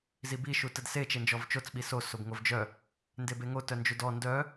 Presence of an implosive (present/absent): present